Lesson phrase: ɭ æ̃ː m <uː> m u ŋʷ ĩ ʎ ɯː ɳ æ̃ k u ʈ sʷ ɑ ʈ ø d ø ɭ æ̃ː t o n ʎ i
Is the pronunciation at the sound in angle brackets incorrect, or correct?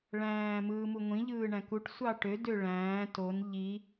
incorrect